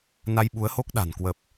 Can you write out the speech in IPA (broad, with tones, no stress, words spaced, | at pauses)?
na˧jɓu˨˦ə̯ho˦˥k̚ ɗa̤˨˩n kwə˨˩p̚